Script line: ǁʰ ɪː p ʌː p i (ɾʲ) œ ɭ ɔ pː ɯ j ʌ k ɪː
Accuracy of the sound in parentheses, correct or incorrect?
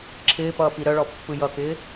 incorrect